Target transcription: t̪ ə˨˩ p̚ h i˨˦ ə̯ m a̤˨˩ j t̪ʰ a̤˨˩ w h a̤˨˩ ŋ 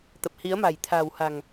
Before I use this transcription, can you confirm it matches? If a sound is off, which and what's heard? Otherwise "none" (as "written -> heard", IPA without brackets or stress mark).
none